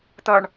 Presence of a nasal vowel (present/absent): absent